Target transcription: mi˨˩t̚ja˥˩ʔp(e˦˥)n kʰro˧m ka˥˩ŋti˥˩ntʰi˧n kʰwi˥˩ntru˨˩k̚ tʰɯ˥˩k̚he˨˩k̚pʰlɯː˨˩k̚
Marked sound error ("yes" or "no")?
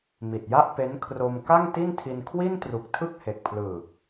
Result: no